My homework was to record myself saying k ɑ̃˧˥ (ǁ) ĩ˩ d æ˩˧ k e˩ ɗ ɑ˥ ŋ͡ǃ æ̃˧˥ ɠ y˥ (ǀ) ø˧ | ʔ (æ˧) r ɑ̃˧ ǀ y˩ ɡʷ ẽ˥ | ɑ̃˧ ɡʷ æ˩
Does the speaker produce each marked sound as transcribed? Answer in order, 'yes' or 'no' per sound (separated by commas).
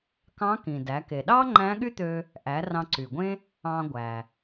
no, no, no